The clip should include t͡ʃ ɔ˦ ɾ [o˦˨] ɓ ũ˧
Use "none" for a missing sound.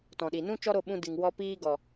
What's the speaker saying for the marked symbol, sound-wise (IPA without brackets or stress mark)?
o˦˨